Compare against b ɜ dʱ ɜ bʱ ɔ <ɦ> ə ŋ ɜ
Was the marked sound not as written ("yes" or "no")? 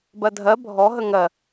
no